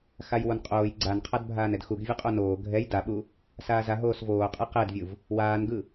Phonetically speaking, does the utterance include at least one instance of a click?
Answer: yes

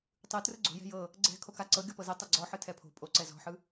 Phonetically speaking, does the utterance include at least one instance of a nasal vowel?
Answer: no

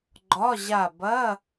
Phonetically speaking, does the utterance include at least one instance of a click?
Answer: yes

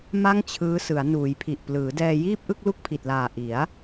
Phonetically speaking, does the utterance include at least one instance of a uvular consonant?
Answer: no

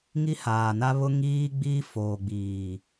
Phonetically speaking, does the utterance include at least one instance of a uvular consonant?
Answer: no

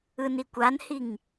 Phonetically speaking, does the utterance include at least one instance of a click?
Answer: no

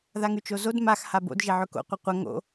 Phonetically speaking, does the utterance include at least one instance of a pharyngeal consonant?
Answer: yes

